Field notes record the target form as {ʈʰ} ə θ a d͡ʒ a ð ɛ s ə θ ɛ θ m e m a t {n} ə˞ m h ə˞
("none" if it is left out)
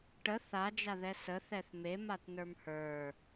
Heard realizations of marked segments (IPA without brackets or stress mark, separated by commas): ʈ, n